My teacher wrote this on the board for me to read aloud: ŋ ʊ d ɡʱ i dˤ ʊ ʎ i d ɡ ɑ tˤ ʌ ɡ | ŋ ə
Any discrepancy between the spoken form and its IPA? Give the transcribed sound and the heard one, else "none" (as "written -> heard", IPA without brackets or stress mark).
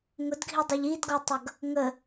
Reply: ɑ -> ɔ